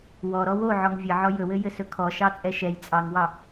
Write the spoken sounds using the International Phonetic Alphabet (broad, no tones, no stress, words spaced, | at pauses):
wɔɾɔ woʕɔŋ vʲɘʕɔ jɵwɘjɘsɵ kʰɔʃɑt͡sʼɛ ʃɛj t͡sʼɑŋwɑ